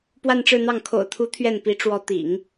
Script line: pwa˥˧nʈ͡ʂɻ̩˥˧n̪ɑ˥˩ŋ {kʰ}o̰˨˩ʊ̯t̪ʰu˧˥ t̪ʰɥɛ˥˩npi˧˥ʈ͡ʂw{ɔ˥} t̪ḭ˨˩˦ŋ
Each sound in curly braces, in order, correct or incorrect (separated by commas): correct, incorrect